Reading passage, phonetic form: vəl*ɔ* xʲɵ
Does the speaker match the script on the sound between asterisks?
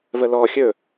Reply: yes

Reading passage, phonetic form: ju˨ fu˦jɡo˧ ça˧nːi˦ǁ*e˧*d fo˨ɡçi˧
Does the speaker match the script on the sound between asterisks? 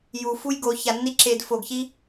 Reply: yes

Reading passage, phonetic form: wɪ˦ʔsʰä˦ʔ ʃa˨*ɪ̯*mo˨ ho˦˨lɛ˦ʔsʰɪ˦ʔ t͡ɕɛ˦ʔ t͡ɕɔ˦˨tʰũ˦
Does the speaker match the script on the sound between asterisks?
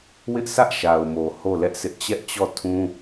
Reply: no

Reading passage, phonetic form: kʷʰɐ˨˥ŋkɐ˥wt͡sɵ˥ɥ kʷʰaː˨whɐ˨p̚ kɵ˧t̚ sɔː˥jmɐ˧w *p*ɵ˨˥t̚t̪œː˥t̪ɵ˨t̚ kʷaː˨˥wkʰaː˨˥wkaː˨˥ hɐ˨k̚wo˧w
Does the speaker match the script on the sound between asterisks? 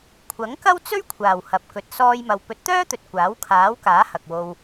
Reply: yes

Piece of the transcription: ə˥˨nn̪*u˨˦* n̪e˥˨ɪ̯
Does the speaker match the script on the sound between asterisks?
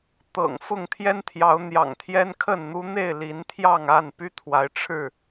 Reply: no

